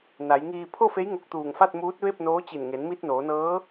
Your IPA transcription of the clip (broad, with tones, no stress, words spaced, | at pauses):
na˩˧jŋiː˧ pʰo˥˨fe˧˥j ŋo˧k̚t̪uː˧˩ŋfa˥˨t̚muː˧˥t̚ ʋe˥˨p̚noː˧˥t͡ɕi˧˩n ŋe˩˧nmi˧t̚ noː˩˧nɤː˧˥